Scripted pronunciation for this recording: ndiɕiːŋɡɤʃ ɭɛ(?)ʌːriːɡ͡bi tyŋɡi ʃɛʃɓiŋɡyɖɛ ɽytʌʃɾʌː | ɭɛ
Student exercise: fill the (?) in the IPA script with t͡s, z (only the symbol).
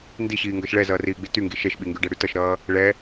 z